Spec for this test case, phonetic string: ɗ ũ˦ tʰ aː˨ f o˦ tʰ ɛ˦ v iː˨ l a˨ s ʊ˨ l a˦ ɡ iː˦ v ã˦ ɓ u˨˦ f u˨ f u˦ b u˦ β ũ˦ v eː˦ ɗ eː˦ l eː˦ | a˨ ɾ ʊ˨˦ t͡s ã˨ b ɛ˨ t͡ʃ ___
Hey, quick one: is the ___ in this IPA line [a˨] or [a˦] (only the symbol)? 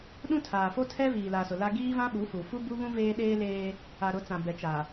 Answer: a˨